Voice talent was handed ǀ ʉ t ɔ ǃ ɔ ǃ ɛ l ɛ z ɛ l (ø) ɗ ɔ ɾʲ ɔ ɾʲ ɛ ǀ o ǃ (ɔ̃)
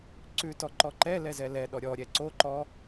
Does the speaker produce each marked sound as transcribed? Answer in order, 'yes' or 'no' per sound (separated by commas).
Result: no, no